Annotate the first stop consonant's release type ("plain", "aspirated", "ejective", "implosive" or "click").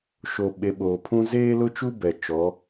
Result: implosive